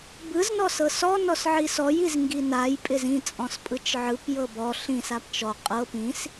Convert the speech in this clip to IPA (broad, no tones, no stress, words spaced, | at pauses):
bɯz nɔsɤsɔ nɔsʕisɔj izŋɡinaj pʼɪzĩ t͡sʼɔ̃spʼɯt͡ʃʕɯp jɤbɔ ɬĩs apt͡ʃɔ qʼɤ pĩs